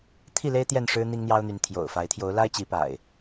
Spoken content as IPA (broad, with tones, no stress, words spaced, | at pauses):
t̪ʰi˥˨le˦ɪ̯ t̪jɛ˥˨nʂɻ̩˦ n̪i˦ŋn̪jɑ˦ʊ̯n̪y˨˦n t̪ʰjo̰˨˩ʊ̯ fa˨˦ɪ̯t̪ʰjo˨˦ʊ̯ la˦ɪ̯t͡ɕi˨˦pa̰˨˩ɪ̯